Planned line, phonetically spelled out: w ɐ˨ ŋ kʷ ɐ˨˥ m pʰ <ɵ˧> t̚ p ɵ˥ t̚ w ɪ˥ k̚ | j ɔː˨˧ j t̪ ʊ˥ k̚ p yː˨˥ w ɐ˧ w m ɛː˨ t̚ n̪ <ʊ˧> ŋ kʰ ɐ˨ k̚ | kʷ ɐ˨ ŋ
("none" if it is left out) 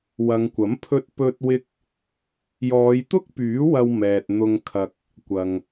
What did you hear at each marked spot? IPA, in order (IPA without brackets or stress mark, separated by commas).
ɵ˧, ʊ˧